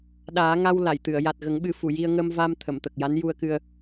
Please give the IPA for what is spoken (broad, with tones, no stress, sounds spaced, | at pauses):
ɗ aː˨˩˦ ŋ a˧ w l a˨˩˨ j t̪ ɨ˨˩˨ ə̯ j a˨˩ t̚ ɣ ə˨˩˦ ŋ ɓ ɨ˨˩˦ f u˨˩˨ j i˧ ə̯ ŋ ə˧ m v a˧ m t̪ʰ ə˨˩˨ m t̪ ə˨˩ k̚ j a˧˥ n j u˧ ə̯ k ɨ˧ ə̯